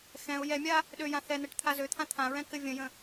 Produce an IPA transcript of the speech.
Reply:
xɛ̃ʊ̯ jɛmʲa | ɗøjã θɛn̪ɛʈ t̪ʰazøt̪ʰã t̪ʰãɹɛ̃ kɘvʲə̃jə̃

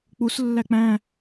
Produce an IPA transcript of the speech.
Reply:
k͡puslːæ k͡pæ̃

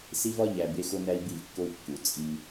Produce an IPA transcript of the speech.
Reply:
si˦vɒ˦ ʎæ˨ be˦xo˦ næ˦i̯bi˦˨vkːo˦u̯ kːu˨ t͡sʼi˦

